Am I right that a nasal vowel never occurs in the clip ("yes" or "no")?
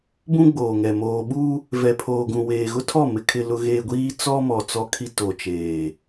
no